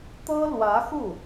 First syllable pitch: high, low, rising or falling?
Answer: high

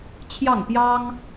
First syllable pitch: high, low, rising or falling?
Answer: falling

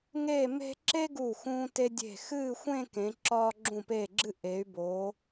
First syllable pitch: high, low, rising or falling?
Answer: falling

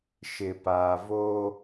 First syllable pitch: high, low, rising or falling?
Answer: low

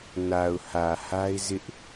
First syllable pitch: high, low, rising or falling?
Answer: low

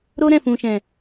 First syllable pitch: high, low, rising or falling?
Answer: high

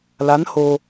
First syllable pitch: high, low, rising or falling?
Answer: rising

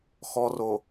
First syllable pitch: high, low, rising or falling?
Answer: low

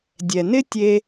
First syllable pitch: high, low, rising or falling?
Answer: low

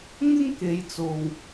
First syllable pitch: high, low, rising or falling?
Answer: high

